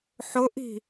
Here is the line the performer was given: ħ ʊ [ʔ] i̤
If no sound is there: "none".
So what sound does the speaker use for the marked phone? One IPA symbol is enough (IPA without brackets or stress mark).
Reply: ʔ